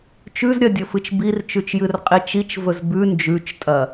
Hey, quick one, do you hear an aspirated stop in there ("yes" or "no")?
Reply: no